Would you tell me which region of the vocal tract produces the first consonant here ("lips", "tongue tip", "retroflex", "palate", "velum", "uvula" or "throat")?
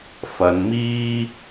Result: lips